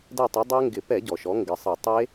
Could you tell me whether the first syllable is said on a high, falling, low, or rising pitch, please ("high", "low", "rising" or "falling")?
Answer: falling